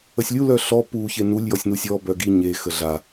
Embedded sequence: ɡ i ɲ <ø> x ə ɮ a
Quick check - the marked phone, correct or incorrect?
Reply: incorrect